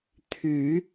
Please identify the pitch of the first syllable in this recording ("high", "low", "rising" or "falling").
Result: rising